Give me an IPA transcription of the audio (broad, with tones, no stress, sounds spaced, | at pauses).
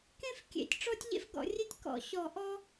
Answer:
k ẽ˥ f kʲ ḛ˨˩˦ tʲ ʈ͡ʂ ɔ˥ tʲ ʎ ḛ˥ f ɡ ɔ̰˨˩˦ rʲ e˥ tʲ k ɔ̰˨˩˦ ɕ ɔ˨˩˦ ʔ ɔ˥